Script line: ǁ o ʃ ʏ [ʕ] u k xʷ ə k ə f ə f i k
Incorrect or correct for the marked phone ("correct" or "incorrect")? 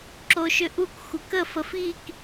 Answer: incorrect